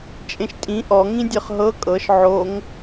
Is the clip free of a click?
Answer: yes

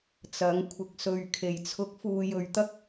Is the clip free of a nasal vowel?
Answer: yes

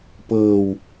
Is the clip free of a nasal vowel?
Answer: yes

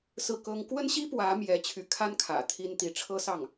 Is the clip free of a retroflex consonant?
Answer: no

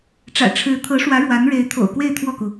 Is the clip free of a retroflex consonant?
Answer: no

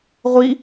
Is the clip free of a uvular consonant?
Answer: no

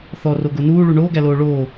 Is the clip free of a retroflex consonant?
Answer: no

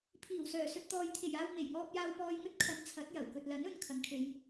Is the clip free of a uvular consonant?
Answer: yes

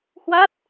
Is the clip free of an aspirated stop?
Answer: yes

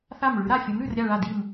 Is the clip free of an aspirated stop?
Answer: yes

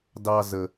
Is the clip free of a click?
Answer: yes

